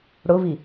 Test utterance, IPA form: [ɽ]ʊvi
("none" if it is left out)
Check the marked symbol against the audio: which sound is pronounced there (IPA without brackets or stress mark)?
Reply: ɽ